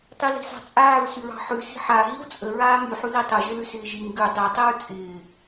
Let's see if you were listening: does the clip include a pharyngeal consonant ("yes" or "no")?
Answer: yes